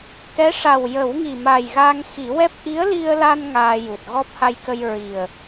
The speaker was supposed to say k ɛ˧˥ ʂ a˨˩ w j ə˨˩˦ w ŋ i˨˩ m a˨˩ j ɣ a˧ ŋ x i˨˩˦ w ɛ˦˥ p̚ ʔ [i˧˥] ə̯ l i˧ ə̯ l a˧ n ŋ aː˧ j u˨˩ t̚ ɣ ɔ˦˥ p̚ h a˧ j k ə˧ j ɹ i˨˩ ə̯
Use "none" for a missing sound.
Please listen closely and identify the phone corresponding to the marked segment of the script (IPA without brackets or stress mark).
i˧˥